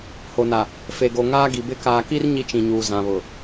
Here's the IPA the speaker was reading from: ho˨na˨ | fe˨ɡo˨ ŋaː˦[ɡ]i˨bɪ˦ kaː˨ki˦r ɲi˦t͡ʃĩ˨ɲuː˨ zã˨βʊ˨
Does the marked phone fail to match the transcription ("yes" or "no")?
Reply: no